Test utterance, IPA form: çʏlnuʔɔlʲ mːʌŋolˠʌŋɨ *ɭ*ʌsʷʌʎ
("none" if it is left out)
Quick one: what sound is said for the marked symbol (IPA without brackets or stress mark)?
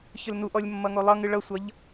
ɭ